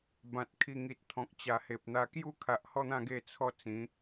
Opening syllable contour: low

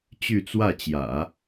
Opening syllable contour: falling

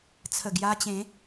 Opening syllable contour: low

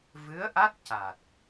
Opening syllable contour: rising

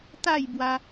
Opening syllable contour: falling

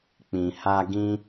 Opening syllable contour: low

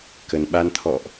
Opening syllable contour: low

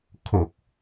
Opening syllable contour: low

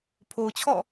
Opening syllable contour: low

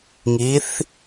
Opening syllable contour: rising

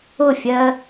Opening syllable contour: falling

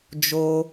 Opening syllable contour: high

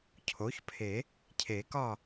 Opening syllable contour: rising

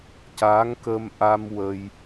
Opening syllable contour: rising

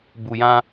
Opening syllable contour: low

